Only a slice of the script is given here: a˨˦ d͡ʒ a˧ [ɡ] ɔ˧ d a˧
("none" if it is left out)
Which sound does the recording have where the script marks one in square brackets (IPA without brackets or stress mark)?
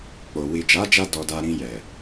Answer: d